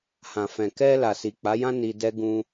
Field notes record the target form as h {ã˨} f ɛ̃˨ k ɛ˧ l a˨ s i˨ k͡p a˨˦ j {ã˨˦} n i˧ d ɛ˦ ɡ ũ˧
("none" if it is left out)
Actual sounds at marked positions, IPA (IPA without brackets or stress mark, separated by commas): ã˨, ã˦